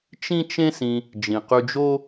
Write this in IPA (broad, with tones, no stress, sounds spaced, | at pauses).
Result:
t͡ʃ ĩ˥ t͡ʃ ẽ˥ s ĩ˧ | d͡ʒ ĩ˩ q y˧ d͡ʒ o˥